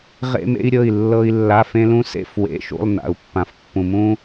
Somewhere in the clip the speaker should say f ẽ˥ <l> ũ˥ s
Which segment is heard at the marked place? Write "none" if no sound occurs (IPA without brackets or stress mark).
l